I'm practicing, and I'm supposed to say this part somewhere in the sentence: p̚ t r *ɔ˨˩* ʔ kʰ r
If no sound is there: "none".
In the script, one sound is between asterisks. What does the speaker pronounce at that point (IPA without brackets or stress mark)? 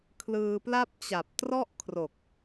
ɔ˥˩